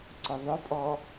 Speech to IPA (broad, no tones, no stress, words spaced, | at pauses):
ǀʊðˤʊpʼɔ